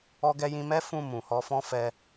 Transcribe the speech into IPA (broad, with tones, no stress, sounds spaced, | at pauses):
ɔ˧ ɡ ɛ˧ j ĩ˧ m ɛ˦ f ũ˦˨ m ũ˨ h ɔ˧ f ɔ̃˦ f ɛ˧